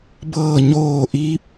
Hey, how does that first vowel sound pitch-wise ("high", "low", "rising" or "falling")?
falling